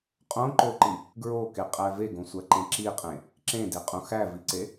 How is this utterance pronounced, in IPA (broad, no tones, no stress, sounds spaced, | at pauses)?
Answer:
qʼ õ ǃ o ǃ i | ɡ ɹ o k e qʼ æ v e ɡ õ sʷ æ ǃ ẽ ǁ i qʼ ẽ | ǁ ẽ d e qʼ ũ x æ v i ǀ e